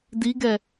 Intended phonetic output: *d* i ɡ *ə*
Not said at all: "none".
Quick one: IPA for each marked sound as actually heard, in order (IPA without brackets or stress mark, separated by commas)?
d, ɛ